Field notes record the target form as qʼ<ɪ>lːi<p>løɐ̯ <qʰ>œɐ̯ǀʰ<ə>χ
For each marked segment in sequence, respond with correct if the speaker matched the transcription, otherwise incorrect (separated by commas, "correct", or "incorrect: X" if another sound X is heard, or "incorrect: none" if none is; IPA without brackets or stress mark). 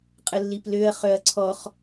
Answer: incorrect: ə, correct, incorrect: χ, incorrect: ɔ